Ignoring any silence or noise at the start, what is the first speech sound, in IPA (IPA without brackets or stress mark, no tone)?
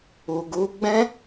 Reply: u